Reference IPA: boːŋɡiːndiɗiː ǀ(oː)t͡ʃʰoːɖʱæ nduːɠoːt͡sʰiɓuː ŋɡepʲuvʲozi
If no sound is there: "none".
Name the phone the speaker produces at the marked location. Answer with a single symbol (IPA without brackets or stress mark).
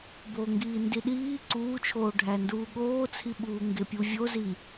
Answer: uː